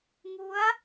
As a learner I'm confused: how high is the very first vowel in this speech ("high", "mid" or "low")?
high